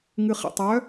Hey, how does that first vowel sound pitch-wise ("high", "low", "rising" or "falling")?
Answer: low